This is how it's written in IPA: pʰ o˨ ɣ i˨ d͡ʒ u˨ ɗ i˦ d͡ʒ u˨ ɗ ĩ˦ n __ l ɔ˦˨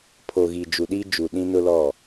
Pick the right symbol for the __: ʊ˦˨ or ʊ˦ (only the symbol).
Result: ʊ˦